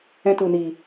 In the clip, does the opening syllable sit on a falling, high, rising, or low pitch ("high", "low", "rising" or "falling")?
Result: high